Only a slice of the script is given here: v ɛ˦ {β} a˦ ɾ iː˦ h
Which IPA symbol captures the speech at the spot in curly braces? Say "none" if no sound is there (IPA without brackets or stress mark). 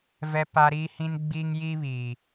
p